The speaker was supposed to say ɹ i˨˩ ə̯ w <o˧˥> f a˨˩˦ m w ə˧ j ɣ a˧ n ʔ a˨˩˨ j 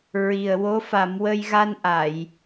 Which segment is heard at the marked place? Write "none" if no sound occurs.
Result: o˧˥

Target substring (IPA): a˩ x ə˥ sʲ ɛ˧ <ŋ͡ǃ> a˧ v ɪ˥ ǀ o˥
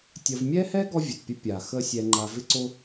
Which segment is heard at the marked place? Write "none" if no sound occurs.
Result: ŋ͡ǃ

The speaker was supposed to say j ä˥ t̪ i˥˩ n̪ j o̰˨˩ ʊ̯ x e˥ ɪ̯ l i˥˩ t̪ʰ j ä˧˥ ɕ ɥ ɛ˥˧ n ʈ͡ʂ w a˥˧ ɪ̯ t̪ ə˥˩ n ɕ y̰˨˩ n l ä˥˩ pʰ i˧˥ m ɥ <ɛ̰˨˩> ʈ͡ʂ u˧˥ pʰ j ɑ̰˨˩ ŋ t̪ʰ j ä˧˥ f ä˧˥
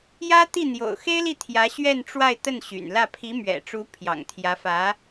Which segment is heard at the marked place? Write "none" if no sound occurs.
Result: ɛ̰˨˩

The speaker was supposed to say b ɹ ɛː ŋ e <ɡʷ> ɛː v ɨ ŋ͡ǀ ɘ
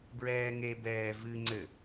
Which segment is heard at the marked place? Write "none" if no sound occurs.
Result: b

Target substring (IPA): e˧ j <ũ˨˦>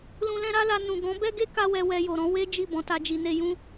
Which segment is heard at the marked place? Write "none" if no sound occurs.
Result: ũ˦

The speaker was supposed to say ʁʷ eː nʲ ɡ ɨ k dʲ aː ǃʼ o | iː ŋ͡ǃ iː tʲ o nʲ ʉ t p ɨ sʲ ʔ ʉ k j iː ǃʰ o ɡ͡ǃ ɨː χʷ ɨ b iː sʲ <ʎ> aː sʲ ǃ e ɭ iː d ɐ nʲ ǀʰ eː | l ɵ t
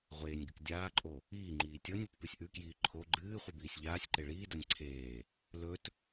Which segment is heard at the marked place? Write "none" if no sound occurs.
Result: ʎ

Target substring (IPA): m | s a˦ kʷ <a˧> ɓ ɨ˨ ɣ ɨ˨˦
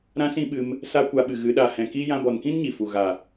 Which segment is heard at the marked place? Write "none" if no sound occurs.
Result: a˧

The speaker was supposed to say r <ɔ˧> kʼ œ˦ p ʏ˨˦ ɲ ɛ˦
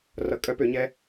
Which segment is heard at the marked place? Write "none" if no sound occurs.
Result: ʌ˧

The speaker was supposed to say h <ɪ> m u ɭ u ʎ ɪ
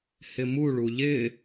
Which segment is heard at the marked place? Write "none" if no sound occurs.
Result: ɪ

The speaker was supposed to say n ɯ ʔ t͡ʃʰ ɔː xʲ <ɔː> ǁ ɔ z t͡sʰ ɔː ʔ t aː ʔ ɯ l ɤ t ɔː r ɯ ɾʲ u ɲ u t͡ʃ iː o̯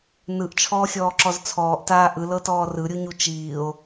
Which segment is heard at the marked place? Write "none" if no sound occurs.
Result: ɔː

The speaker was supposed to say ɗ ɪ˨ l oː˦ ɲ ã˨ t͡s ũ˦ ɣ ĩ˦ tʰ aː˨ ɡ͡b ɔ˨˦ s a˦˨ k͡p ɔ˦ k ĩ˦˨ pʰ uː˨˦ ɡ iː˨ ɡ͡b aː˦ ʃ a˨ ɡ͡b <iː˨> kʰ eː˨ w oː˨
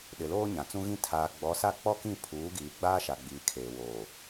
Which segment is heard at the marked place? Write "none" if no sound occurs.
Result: iː˨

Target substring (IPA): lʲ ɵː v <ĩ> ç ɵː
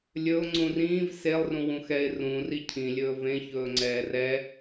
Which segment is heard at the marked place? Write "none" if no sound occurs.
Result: ẽ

